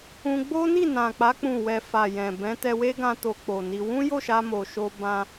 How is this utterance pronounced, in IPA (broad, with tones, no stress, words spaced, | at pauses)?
ũ˧ɡ͡bo˦ ni˦˨nã˨k͡pa˨˦ k͡pũ˦˨wɛ˧ fa˨ jɛ̃˨ bɛ̃˨˦ tɛ˧we˦ɡã˧ to˧k͡po˨ni˧ wũ˦jo˦˨ʃa˧ mo˨ʃo˧ bã˧